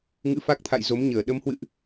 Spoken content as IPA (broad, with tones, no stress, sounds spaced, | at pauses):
ŋ ɨ̰˧˥ f a˦˥ k̚ t̪ʰ a̰˧˨ j z o˨˦ m ɲ əː˧˩ ɗ ə˨˦ m h w ɨ̰˧˨ ʔ